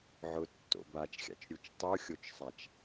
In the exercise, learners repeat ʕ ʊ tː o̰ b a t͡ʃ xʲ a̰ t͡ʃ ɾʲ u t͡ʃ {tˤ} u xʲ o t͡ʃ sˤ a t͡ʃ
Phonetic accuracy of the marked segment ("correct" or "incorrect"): correct